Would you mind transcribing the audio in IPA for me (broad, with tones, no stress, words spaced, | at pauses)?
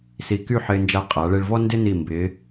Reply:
si˧ ky˥˧ħɪː˧nd͡ʒa˧ qʼa˩˧ɭe˧ɭvɔ˥ ndɪ˥ni˧˩mbɪː˩˧